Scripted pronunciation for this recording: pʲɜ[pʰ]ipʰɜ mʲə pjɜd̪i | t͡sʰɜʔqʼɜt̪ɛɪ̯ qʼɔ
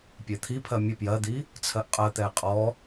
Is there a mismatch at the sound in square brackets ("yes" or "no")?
yes